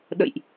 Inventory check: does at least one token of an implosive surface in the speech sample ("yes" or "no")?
yes